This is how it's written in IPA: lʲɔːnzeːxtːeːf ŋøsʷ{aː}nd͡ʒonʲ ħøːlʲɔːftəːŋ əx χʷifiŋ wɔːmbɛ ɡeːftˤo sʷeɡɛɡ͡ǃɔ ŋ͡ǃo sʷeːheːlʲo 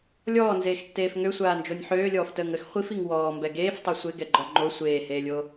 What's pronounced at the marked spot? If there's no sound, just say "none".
aː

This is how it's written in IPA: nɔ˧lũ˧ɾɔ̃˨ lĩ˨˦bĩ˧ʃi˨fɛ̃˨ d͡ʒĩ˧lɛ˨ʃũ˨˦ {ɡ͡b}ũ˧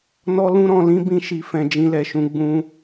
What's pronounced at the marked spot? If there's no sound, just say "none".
ɡ͡b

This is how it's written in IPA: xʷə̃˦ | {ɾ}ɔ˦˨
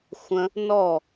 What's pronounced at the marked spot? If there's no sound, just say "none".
n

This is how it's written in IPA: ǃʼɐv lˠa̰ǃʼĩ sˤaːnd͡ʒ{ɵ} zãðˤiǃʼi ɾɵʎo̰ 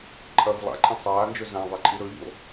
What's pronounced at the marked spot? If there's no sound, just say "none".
ɵ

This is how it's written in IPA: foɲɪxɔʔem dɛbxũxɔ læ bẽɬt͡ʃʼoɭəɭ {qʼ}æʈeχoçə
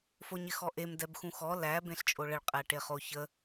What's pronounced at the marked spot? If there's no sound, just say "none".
qʼ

